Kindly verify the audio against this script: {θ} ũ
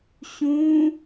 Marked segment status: incorrect: ɕ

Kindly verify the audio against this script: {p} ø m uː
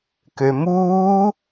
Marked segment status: incorrect: k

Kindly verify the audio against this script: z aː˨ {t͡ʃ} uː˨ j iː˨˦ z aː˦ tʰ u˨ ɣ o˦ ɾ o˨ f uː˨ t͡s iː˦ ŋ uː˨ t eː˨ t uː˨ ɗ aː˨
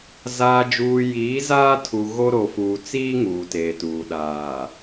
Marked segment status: incorrect: d͡ʒ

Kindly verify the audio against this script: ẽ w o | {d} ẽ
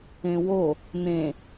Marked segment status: incorrect: n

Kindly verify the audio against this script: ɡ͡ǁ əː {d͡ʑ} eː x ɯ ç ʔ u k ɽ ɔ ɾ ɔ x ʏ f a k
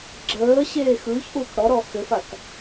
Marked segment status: incorrect: ɕ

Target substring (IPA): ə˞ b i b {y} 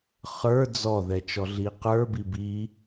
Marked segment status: incorrect: i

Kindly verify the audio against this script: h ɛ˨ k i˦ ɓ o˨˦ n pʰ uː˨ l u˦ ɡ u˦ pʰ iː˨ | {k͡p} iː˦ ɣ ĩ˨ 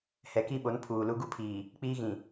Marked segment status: correct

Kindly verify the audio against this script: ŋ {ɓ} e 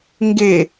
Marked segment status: incorrect: ɡ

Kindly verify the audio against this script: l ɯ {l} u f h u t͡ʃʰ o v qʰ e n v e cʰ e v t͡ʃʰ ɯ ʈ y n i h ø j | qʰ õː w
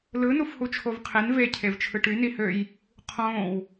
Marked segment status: incorrect: n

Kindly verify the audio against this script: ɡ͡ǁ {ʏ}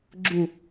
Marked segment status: incorrect: u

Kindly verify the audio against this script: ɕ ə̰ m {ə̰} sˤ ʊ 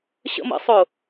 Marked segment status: correct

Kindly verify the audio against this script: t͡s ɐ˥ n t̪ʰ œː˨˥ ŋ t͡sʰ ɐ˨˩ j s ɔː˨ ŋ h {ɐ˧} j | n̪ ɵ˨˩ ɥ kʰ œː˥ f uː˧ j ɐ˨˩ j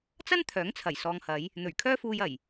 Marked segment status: incorrect: ɐ˨˧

